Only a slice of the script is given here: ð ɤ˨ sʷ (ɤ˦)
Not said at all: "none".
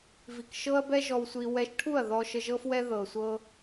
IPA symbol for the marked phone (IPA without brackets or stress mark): ɤ˦